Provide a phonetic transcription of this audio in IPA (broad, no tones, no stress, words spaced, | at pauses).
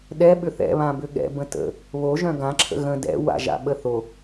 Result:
ɗɛ ɓʏθɛ̰ βãbʏɠɛ̰ bə̃tə̰ | βoʒœ̃ ɡãǁʰə̰ ɣə̃ dɛ̰ wa̰ʒa̰ ɓəθo